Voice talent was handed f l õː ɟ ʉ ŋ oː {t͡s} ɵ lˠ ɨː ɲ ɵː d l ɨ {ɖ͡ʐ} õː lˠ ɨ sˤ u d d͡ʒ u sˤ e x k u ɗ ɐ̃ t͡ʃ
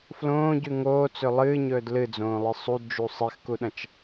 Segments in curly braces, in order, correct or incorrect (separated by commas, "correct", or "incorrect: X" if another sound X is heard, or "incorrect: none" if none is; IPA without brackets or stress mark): correct, incorrect: d͡z